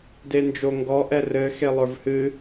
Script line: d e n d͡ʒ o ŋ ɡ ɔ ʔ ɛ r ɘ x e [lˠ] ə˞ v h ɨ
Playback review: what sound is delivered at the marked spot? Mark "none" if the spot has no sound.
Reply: lˠ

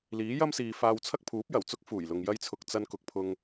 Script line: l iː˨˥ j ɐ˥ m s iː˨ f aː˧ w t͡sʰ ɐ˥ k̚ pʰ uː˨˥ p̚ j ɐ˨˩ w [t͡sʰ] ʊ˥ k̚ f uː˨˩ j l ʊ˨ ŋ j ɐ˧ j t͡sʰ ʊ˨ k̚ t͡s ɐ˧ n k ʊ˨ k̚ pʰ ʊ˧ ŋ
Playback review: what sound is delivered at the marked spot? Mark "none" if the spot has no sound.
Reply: t͡s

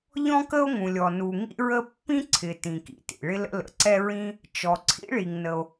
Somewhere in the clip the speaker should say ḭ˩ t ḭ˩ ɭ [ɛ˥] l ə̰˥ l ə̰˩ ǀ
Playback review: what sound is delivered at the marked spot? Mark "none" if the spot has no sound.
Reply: ɪ˥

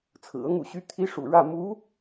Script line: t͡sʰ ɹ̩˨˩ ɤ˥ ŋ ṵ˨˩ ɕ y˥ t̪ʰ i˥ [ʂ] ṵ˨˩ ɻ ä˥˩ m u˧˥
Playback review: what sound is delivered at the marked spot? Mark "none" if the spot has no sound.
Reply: ʂ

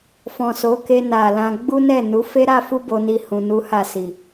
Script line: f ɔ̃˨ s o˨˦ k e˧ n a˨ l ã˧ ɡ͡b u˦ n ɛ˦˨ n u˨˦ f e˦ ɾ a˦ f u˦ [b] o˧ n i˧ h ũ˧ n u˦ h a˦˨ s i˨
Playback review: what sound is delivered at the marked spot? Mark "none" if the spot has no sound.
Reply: b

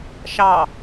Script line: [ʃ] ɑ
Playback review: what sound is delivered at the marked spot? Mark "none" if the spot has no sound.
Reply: ʃ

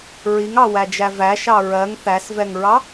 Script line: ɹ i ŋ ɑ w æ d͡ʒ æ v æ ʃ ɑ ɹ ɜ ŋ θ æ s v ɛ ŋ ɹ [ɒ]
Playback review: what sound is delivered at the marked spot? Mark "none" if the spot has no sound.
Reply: ɑ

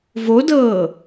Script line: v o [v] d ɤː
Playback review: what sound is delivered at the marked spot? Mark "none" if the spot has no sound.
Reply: none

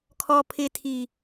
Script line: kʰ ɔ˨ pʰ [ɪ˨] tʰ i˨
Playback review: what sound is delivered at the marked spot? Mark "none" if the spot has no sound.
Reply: ɪ˨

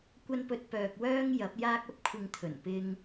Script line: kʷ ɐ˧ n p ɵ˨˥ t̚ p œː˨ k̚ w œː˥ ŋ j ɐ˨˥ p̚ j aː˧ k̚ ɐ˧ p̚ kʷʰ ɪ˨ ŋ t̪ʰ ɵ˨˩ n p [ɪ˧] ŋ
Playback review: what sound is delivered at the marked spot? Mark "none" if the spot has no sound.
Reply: ɪ˧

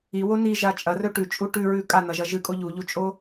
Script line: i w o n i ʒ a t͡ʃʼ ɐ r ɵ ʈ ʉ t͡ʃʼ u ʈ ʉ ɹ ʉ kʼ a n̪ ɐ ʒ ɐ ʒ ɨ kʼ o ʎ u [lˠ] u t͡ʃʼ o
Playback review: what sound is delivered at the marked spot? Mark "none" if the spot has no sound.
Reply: ʎ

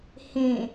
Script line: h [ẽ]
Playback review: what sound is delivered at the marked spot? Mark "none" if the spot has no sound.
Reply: ẽ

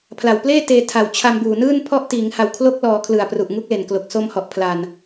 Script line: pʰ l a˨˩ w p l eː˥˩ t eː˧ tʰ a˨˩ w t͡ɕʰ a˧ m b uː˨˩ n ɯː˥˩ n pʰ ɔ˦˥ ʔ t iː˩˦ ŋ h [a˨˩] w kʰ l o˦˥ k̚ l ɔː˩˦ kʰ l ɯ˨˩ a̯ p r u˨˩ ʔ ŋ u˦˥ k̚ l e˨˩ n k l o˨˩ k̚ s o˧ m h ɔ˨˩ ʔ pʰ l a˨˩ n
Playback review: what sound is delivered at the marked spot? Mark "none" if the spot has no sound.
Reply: a˨˩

